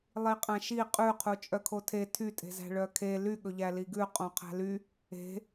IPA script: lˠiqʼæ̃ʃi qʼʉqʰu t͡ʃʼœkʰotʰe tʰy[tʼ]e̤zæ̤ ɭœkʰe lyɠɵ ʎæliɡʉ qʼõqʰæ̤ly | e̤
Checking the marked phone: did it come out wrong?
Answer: no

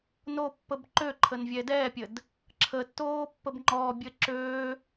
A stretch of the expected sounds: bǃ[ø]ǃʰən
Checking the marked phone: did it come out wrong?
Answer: no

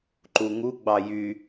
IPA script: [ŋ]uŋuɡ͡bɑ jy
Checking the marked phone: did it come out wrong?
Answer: yes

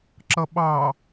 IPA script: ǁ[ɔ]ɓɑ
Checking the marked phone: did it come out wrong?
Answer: yes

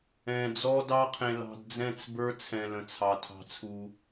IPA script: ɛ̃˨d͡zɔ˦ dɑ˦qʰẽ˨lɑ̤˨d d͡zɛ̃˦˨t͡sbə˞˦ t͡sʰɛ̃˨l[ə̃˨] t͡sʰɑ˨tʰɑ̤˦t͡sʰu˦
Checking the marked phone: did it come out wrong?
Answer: no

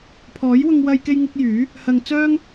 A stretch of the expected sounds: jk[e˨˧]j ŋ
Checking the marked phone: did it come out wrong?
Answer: yes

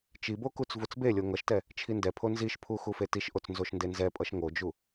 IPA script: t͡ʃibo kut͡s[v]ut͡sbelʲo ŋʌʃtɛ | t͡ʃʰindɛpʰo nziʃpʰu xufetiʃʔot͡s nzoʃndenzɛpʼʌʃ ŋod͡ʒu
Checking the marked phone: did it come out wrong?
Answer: no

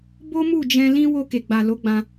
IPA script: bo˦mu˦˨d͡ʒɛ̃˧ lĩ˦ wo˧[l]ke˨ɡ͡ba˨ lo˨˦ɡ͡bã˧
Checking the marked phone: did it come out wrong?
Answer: yes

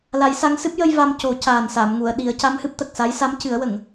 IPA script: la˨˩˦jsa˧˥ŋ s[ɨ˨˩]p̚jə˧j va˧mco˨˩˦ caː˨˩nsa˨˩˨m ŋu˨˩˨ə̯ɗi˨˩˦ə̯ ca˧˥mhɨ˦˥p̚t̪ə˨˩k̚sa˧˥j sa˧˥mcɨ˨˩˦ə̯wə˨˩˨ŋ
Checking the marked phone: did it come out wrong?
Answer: yes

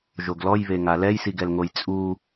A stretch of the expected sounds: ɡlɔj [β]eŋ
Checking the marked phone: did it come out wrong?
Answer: no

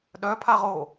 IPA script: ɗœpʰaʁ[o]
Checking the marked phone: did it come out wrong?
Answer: no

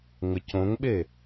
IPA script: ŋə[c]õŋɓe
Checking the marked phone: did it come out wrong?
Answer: no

